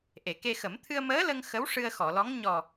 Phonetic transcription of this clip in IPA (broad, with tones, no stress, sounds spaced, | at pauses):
ʔ e˨˩˨ k e˧ x ə˨˩˦ m t̪ʰ ɨ˧ ə̯ m əː˧˥ l ə˧ ŋ x ə˧˥ w ʂ ɨ˧ ə̯ x ɔ˨˩˨ l ɔ˧˥ ŋ ɲ ɔ˨˩